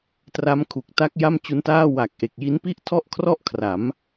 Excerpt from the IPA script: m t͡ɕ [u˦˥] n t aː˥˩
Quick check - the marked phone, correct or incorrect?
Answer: correct